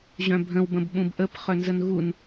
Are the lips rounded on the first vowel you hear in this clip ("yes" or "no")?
yes